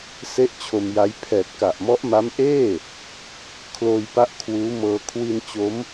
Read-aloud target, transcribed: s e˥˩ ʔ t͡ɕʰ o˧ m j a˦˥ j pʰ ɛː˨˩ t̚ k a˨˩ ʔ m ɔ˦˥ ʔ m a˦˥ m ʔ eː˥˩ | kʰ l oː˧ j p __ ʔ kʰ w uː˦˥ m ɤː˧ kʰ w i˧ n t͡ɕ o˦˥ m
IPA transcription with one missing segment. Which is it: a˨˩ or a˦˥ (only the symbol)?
a˦˥